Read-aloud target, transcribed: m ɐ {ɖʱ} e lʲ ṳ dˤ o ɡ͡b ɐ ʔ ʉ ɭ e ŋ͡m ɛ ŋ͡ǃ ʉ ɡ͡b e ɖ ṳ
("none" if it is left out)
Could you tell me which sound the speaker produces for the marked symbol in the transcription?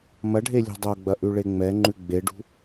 ɖʱ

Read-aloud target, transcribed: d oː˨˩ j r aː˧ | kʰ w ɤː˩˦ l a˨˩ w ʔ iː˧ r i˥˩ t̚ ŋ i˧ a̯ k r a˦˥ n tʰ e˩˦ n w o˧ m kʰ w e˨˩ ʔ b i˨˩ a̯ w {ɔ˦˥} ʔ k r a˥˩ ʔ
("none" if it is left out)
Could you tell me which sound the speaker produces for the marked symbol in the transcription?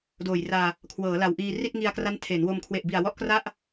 ɔ˦˥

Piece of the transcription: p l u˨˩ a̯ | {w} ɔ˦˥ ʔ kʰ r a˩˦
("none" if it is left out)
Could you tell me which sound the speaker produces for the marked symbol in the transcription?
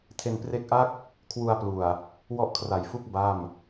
w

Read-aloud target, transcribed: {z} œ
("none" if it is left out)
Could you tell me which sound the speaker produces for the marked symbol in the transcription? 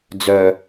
d͡z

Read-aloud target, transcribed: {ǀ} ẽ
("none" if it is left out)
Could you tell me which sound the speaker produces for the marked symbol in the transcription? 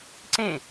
ǀ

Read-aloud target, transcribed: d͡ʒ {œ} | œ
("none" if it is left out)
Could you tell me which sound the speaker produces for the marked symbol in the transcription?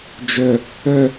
œ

